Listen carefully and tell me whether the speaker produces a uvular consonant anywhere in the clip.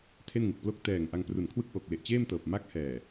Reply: no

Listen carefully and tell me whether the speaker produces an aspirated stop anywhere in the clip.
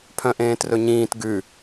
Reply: yes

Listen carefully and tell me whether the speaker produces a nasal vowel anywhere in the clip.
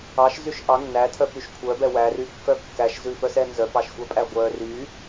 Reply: no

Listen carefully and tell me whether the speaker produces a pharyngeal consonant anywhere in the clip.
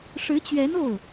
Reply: no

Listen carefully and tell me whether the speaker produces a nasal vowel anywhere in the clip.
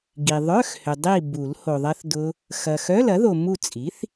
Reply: no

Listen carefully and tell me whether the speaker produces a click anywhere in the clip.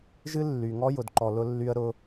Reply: yes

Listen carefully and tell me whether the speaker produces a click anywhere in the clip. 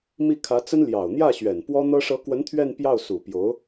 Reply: no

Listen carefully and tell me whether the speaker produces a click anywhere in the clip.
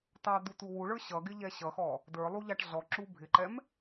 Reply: yes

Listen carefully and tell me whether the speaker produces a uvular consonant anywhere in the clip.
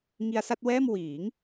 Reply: no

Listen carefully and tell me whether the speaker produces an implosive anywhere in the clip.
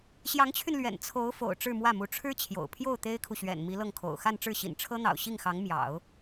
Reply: no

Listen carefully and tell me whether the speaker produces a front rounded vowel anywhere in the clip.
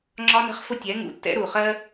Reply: no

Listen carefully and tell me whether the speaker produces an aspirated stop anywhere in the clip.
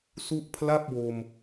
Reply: yes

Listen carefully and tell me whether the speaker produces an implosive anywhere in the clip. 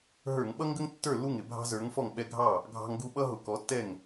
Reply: yes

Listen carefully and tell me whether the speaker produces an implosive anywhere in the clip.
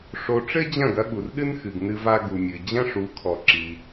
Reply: yes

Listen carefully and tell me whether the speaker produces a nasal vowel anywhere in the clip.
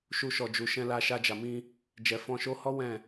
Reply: yes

